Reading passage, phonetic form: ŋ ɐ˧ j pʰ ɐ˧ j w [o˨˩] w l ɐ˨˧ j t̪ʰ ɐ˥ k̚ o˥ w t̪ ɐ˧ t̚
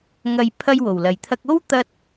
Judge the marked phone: correct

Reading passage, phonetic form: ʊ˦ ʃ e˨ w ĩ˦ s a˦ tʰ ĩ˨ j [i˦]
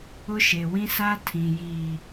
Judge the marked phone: incorrect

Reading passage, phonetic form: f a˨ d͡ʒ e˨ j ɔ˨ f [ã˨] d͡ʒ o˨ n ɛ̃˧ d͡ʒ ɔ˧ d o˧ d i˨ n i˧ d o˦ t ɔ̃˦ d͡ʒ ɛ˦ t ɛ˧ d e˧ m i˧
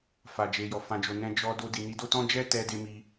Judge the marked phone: correct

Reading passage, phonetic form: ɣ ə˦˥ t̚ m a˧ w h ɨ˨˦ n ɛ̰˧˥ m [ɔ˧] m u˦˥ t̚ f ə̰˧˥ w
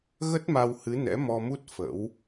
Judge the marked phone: correct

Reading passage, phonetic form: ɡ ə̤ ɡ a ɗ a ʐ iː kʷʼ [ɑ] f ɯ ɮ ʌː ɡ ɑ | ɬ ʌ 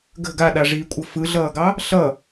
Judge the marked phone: incorrect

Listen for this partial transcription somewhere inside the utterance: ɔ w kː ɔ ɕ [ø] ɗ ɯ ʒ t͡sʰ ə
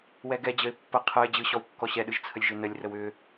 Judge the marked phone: incorrect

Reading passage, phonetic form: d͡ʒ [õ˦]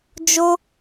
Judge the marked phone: incorrect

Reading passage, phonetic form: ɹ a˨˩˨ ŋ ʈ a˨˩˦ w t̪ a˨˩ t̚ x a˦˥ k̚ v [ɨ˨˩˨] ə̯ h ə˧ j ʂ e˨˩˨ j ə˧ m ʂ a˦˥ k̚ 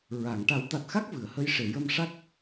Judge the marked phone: correct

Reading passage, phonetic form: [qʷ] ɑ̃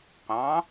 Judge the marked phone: correct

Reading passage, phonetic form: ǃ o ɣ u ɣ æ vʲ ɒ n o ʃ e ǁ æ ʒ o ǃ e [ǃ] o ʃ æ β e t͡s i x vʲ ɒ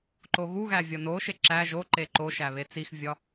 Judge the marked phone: correct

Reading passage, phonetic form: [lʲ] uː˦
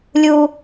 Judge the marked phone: correct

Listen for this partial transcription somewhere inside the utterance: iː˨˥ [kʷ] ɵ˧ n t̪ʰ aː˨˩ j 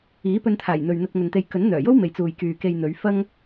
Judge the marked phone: incorrect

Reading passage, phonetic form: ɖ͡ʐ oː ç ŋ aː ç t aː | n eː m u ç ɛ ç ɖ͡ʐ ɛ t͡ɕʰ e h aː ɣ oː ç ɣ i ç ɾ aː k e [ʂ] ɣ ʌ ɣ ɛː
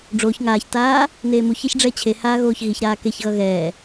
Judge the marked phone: incorrect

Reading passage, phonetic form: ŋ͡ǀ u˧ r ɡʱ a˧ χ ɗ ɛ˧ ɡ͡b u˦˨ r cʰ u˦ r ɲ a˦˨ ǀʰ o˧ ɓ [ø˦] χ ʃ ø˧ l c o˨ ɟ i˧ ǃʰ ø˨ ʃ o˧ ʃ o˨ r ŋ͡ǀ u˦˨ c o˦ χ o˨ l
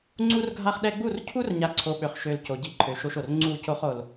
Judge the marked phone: incorrect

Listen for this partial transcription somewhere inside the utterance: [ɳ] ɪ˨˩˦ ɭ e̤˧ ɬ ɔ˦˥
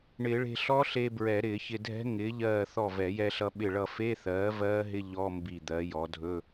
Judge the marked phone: correct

